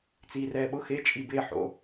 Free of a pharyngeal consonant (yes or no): no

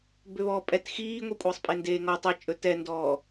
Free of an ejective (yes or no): no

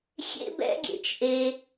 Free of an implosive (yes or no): yes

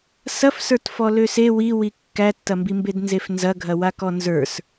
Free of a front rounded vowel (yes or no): no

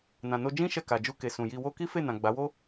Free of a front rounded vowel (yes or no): yes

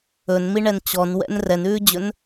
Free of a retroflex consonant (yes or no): no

